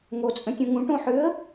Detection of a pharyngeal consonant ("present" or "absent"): present